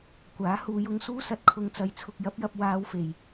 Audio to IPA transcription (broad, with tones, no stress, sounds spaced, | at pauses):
kʷ aː˨˥ h uː˨˧ j ʊ˧ ŋ s uː˥ s ɐ˧ t̚ kʰ ʊ˧ ŋ t͡s ɐ˨˧ j t͡sʰ ʊ˨ k̚ j ɐ˨˥ p̚ j ɐ˧ p̚ w aː˧ w f e˨˩ j